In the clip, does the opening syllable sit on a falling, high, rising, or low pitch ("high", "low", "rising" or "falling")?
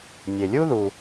low